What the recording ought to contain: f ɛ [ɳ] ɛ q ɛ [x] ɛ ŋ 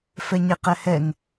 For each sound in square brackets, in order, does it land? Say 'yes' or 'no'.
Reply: no, no

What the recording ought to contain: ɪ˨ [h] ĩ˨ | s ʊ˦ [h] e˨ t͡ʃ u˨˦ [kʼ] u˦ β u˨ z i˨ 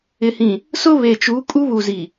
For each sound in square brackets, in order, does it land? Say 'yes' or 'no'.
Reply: yes, no, yes

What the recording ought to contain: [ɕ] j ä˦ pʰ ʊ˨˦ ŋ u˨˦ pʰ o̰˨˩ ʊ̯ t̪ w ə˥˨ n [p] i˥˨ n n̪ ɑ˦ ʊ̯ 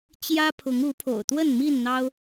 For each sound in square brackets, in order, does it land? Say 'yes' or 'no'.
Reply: no, no

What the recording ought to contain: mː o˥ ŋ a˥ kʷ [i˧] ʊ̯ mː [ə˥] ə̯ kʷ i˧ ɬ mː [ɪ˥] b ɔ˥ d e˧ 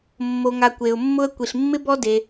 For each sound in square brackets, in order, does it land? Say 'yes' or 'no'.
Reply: no, no, yes

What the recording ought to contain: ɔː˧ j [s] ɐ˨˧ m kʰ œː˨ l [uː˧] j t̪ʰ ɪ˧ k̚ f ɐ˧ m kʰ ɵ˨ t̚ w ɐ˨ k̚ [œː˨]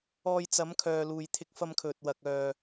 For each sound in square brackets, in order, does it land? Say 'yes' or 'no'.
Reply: no, no, yes

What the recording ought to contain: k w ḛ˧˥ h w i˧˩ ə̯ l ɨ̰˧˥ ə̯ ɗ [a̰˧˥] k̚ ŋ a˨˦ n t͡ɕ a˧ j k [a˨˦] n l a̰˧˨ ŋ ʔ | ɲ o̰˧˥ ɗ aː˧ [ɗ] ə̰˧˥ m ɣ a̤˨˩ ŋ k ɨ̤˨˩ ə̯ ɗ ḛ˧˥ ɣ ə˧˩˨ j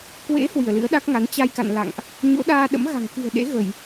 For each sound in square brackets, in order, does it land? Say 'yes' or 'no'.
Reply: no, no, yes

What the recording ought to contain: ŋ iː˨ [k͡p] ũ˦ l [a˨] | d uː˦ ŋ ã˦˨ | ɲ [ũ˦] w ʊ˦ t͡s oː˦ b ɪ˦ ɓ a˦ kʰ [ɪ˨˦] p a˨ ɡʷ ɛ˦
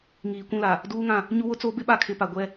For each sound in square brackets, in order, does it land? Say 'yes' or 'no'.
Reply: no, yes, no, yes

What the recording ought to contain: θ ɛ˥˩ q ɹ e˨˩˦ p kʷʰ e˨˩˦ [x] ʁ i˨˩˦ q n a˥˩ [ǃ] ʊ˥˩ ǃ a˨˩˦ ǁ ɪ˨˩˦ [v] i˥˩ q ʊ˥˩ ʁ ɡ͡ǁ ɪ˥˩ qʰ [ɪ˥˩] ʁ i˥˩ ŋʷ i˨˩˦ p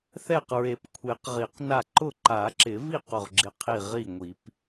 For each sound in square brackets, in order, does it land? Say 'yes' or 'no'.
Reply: no, yes, yes, no

